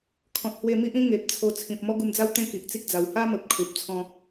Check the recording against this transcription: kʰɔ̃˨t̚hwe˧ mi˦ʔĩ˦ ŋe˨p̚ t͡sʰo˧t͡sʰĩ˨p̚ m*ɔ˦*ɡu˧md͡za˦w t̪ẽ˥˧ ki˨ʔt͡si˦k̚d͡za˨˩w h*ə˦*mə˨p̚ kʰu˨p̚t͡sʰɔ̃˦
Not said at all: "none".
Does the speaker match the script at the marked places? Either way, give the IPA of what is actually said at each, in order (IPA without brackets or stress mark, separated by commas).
ɔ˦, a˦